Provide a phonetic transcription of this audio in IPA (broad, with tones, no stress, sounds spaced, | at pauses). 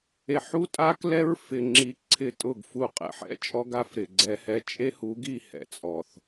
e˨ ħ u˦ tʼ a˦ k l ɛ˦ ɹ f ɪ˨ ŋ͡ǁ i˨ ǀʰ ɪ˦ tʼ ʊ˦˨ ɡ f u˦˨ qʼ ɛ̰˦ ħ ɛ̰˦ t͡ʃʼ ɔ˦ ɡ a˦ f ɾ ɪ˨ ɡ͡ǀ ɛ˦ h ɛ˦ t͡ʃʼ e˦ h u˨˦ ɡ i˦˨ h ɛ̰˨ t͡sʼ ɔ˨ θ